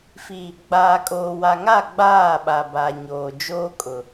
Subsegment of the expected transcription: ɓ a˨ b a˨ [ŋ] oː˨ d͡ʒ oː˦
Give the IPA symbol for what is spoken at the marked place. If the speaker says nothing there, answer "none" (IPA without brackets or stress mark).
ɲ